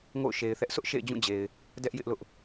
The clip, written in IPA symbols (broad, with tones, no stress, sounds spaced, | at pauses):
ŋ o̰˦˨ ʊ̯ ʃ e˨ ɪ̯ θ ɛ˦ ʔ s ʊ˦ ʔ ʃ ḛ˦˨ ɪ̯ d͡ʑ ũ˦˨ d͡ʑ e˨ ɪ̯ | d ɛ˦ ʔ j ɪ˦ ʔ l ʊ˦ ʔ